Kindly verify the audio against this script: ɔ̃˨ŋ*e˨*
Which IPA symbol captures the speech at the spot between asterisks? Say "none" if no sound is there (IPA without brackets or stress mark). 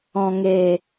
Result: e˨